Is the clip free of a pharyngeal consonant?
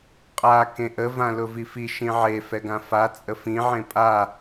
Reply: no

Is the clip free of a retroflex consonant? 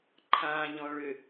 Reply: no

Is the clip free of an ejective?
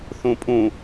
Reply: no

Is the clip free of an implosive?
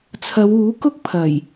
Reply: yes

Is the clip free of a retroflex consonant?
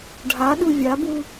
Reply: no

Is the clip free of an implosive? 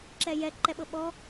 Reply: no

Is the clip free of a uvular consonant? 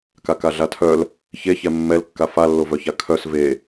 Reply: yes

